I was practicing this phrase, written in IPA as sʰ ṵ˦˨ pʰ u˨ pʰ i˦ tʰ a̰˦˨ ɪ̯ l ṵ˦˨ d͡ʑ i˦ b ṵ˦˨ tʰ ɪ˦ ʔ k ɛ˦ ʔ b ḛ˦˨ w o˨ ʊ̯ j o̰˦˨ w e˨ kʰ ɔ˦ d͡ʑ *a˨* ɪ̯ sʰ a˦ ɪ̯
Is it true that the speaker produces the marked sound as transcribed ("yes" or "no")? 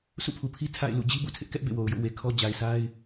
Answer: yes